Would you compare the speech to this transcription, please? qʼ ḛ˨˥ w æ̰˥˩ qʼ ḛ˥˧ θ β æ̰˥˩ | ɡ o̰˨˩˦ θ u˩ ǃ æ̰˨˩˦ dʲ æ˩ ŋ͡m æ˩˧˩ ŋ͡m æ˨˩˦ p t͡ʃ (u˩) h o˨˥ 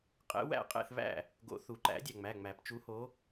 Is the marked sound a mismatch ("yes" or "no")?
yes